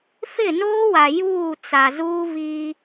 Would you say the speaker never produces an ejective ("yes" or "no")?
yes